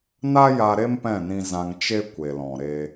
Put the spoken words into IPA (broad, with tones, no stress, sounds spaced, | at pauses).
n a˦ j a˧ ɾ e˦ m p ɛ̃˦˨ n ĩ˧ z ã˧ ŋ t͡ʃ e˦ kʷ e˨ l ɔ̃˨ ɾ e˧